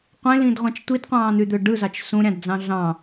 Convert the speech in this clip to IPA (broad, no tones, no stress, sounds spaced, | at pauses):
qʷ ẽ l ĩ d ʁʷ ɑ̃ t͡ʃ tʷ i d qʷ ɑ̃ː n̪ y d̪ ø ɖ ɯ z ɑ t͡ʃ s ũ ɾʲ ɑ̃ d d͡z ɑ̃ ɮ ɑ̃